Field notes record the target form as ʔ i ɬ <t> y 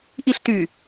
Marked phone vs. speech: correct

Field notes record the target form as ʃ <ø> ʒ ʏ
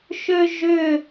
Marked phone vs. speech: correct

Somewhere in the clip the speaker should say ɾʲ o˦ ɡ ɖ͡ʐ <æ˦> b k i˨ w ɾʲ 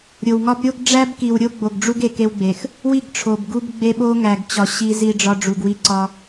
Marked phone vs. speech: correct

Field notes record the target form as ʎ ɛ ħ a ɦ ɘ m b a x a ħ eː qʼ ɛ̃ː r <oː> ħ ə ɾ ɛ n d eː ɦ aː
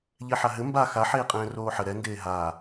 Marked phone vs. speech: correct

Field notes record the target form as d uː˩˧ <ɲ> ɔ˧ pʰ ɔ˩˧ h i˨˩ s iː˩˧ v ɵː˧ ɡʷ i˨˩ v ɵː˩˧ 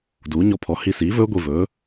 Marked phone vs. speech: correct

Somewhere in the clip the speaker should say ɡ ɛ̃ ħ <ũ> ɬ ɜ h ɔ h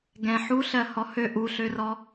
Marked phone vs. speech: incorrect: u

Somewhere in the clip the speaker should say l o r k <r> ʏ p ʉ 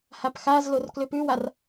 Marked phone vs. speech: incorrect: l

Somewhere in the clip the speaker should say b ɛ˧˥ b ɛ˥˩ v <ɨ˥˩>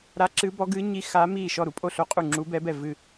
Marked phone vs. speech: correct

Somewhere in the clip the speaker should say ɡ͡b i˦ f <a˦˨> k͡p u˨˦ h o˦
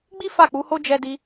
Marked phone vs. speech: correct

